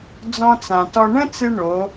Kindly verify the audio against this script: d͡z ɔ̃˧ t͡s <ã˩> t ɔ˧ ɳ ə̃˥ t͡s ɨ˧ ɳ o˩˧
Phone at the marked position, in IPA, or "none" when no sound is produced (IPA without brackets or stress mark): ã˩